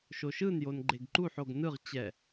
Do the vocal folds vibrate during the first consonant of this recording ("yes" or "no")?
no